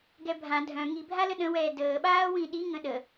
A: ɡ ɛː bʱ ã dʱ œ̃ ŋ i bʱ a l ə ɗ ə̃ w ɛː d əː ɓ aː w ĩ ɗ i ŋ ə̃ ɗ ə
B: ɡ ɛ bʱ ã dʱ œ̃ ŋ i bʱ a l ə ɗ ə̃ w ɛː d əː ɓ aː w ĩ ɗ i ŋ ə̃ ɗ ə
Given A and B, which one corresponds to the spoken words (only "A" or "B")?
B